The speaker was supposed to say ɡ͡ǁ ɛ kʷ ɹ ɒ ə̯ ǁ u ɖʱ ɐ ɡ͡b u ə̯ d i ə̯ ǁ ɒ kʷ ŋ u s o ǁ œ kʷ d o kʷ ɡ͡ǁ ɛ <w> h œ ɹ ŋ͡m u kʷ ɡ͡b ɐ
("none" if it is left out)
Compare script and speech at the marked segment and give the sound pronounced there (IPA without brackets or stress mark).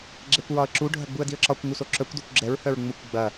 ɹ